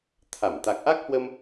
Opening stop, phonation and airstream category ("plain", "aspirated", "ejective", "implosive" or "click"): aspirated